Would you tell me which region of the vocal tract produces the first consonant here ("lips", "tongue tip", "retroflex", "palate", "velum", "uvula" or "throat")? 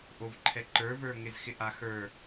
throat